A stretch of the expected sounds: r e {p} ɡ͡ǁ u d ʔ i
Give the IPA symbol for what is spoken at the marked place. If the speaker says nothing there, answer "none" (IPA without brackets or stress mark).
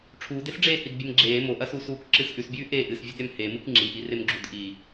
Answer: m